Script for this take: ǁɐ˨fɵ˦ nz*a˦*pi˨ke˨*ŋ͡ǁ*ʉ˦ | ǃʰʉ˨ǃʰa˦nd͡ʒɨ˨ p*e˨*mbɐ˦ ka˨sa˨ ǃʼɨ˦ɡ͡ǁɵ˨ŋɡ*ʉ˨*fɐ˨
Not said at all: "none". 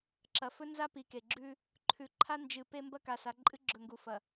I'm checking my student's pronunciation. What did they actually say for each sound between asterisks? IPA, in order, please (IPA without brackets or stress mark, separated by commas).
a˦, ɡ͡ǁ, e˦, u˨